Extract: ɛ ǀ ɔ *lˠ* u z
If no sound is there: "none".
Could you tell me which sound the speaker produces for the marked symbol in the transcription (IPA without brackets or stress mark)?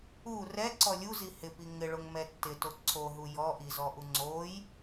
lʲ